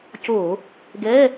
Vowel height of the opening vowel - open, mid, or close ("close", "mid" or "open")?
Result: mid